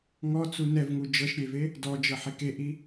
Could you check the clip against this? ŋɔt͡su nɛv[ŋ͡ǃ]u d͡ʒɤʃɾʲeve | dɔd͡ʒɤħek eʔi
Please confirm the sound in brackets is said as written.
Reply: no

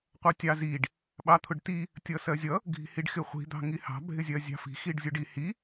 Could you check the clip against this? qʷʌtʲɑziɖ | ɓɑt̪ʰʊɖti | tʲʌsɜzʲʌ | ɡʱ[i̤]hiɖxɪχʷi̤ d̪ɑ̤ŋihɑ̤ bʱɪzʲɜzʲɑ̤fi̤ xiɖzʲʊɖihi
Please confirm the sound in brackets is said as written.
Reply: yes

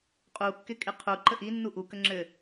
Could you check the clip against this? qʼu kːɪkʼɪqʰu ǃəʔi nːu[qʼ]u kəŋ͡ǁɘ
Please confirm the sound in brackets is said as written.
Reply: no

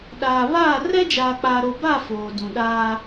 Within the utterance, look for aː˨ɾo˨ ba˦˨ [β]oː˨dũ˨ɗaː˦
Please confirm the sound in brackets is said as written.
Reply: no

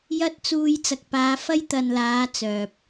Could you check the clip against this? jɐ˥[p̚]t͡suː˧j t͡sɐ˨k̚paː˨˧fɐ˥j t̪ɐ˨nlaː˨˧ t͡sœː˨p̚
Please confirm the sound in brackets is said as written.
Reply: no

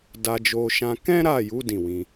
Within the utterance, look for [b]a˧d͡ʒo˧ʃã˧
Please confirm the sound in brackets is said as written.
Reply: no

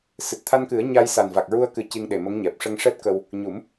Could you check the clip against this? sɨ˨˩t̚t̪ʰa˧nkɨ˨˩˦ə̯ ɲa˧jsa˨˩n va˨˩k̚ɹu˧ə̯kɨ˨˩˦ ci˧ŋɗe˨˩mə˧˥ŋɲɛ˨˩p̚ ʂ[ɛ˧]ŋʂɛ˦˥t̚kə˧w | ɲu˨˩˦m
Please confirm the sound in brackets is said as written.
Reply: no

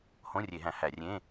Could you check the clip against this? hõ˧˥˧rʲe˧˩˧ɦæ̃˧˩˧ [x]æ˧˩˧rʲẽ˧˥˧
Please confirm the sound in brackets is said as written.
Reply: no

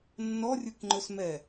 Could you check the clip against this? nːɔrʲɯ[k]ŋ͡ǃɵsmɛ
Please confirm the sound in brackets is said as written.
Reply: yes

